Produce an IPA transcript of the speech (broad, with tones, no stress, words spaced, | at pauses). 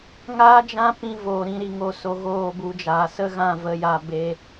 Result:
ŋaː˦d͡ʒã˦ pĩ˧ voː˨ɾĩ˨˦ɾi˨ŋo˧ so˧ɣoː˦˨bu˧d͡ʒaː˨ sə˦ɣã˦˨ və˧ja˧ be˧